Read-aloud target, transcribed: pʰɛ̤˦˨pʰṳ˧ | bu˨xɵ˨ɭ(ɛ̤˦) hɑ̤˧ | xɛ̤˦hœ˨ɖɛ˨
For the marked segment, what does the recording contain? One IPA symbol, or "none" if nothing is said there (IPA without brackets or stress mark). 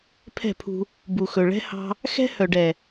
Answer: ɛ̤˦